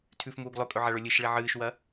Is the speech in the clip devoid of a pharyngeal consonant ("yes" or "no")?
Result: no